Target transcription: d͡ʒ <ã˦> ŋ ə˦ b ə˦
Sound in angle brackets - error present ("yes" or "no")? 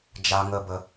yes